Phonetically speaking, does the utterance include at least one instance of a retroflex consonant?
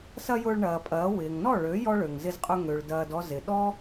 yes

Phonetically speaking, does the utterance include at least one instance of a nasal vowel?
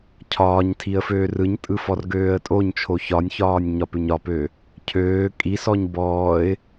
no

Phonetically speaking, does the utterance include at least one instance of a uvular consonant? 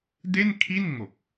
no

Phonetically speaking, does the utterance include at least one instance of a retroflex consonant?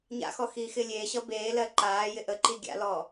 no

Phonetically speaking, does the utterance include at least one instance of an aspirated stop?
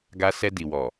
no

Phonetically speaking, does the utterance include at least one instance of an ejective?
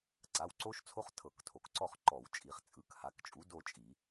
yes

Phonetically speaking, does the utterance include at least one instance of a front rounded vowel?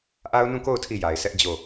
no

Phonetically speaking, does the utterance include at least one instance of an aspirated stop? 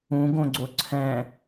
yes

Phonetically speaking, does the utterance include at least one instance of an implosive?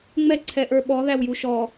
yes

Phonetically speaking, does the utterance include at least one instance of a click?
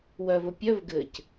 no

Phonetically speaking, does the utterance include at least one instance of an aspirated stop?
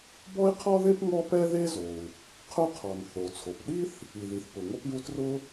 yes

